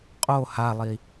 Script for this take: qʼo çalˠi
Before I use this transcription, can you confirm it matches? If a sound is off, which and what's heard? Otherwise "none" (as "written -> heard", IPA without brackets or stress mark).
ç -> h